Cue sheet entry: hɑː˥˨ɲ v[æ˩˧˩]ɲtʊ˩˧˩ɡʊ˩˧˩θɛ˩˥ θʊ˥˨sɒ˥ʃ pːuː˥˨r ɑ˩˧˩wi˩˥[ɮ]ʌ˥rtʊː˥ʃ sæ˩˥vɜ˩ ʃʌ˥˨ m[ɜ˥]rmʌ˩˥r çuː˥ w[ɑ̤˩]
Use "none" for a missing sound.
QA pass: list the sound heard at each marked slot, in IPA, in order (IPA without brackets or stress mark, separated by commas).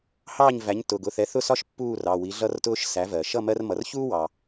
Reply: æ˩˥, ɮ, ɜ˥, ɑ˩